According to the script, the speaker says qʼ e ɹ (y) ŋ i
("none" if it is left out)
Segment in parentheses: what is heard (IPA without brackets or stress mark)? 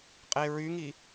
y